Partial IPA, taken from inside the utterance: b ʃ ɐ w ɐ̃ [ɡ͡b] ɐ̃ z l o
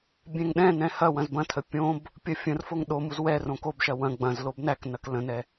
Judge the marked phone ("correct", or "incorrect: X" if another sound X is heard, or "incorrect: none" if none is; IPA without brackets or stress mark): correct